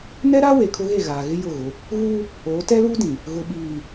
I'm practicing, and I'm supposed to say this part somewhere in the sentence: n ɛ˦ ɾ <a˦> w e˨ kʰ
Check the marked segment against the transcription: correct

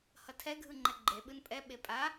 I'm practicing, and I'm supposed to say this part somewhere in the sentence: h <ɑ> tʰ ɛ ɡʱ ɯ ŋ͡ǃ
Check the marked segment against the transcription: incorrect: ʌ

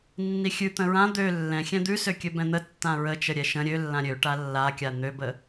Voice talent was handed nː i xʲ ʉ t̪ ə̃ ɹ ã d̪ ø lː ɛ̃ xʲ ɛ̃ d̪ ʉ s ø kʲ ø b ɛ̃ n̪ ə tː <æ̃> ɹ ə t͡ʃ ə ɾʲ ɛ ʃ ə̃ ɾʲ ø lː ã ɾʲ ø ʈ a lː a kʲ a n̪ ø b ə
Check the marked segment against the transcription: incorrect: ã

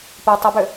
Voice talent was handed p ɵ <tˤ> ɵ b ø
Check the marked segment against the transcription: correct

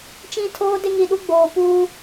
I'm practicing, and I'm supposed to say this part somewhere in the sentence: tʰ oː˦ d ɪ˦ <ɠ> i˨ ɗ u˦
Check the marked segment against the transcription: incorrect: ŋ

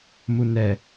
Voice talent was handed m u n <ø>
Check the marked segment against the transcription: incorrect: ɛ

